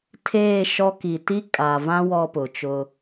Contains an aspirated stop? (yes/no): yes